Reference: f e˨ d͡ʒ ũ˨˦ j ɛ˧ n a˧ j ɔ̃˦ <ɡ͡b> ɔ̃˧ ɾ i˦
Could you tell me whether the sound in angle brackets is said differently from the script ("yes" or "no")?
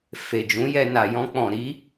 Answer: yes